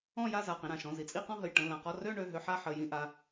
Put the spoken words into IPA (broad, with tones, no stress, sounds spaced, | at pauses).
ɔ̃˥˧ j a˥˧ z a˩˧˩ q ĩ˩˧˩ ɾ ã˩˧˩ ʃ ɔ̃˩˧˩ z i˩˧˩ t͡sʼ i˥˧ q ɔ̃˥˧ ɦ ə˩˧˩ j ʈ ə̃˩˧˩ l ã˩˧˩ q ɔ˥˧ r ø˥˧ ɳ ø˩˧˩ ɦ ø˥˧ ħ a˥˧ ħ ə˩˧˩ j ĩ˥˧ ʔ a˩˧˩